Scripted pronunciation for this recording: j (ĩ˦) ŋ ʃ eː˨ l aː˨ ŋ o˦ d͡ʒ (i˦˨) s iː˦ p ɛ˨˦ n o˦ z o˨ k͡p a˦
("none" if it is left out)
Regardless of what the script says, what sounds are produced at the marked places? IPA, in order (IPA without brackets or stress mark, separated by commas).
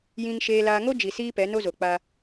ĩ˨, i˨